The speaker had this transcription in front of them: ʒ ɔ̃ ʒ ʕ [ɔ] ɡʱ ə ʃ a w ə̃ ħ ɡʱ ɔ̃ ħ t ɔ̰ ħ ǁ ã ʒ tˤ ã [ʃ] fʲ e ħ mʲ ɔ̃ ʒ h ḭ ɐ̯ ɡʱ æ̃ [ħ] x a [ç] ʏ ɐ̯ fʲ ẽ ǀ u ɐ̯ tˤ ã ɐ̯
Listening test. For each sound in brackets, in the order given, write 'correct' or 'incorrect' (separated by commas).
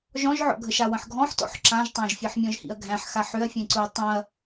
incorrect, incorrect, correct, incorrect